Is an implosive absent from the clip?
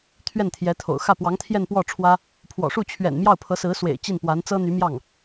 yes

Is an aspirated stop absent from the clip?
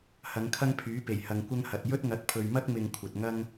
no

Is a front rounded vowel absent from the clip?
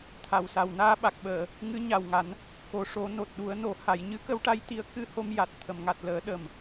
yes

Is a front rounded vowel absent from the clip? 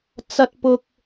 yes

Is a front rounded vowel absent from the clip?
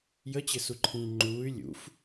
no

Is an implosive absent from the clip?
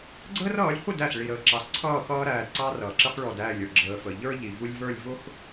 yes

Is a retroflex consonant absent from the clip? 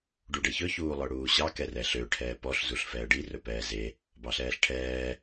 no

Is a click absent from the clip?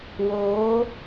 yes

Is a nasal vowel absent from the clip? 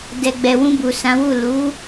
no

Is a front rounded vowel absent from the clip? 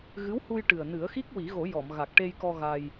yes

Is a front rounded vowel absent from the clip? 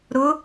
yes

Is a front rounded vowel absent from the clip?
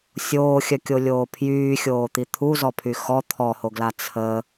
no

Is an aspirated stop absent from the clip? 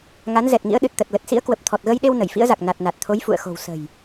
no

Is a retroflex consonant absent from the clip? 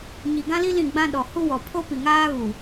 yes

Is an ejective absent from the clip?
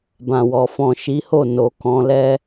yes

